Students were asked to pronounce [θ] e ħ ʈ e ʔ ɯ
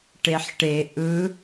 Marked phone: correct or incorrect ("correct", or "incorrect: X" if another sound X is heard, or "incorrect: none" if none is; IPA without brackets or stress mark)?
incorrect: ʈ